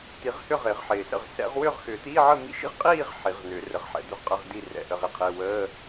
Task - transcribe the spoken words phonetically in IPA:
t̪i˨˩˦ʁhʏ˥˨ ʁɪː˨˩˦ʁħɪː˨˩sə̰˥˨ʁ sɛ̰˨˩˦ʁwʏː˥˨ʁxʏː˨˩˦t̪iː˧˥˧ ʕə˥˨mḭ˧˥˧ʃḭ˥˨ʁ qʼiː˥˨ʁ ħi˨˩˦ʁnʏː˨˩˦rə˨˩˦ʁħɛ̰˨˩˦ d̪ʏ˧˥˧ʁqʼə˧˥˧ʁdi˥˨ rɛ̰˨˩˦ʔə˧˥˧ʁi˧˥˧qʰɪː˧˥˧ wəː˧˥˧

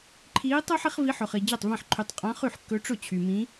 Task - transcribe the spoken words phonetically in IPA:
ǃʰiː˧˥tˤʊː˥ħ i˧˥χvi˧˥ħɵ˨χi˨ d͡ʑe˥˩tˤvẽ˥˩ħǃʰy˧˥tˤ qʼã˧˥χy˥˩ħkːɵ˧˥ ʈ͡ʂʊ˥˩t͡ɕʰy˨mĩ˧˥

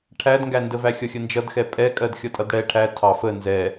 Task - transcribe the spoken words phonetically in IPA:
ʈʰædŋɡændə væxʲʌxʲənd͡ʒʌd xɛpʼɛkʼɜd xʲʌtʼʌdɽɛ ʈʰæ tʰɑ fə nzɛ

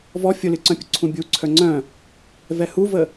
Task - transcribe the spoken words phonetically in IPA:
vɔ fʲolɨǀœ̃pʲʊ ǀʰũbʲu ǀʰœŋ͡ǀœ̃ | vɛhuvə

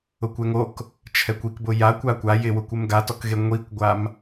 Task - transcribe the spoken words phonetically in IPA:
ʊkʷɛŋok | t͡ʃʰɛkʷikbʊ jakʷ akʷa jɪwʊkʷ ɪmɡatɔkɣe ŋʷikʷɡʷam

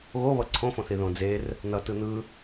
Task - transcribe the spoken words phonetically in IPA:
ɣoβʌ ǀʰõfõθi ðõd͡zer | nʌ tɯn̪ɯ

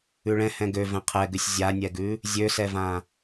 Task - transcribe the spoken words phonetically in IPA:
ʉɭɛ̃ hɛ̃ɡø vɛ̃qʰɛɡʉsʲ zʲanʲɛɡʉ | zʲøsɛvã

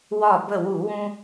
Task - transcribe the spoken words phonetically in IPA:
wɒ˧˩bə˧˩wu˧˩˧wũ˧

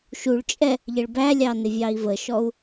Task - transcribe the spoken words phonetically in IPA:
ʃuɭt͡ʃʼɛ | ʎəɭbælʲɑ nɪvʲɑi̯vəʃɔu̯

